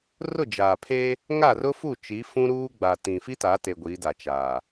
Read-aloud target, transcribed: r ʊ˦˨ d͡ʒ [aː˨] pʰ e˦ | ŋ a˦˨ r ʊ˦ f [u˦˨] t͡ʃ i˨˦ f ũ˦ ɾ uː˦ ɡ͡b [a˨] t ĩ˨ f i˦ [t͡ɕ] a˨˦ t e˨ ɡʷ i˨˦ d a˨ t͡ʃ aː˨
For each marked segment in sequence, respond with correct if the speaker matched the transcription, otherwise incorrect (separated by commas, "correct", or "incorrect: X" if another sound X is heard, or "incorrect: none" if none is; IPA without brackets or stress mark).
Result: correct, correct, correct, incorrect: t